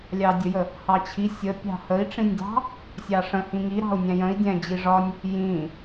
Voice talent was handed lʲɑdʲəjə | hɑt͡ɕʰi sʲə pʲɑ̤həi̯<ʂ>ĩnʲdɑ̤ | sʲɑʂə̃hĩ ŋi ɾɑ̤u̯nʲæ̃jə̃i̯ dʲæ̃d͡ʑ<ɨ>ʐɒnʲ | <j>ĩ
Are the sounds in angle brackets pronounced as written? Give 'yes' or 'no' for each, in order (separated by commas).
no, no, yes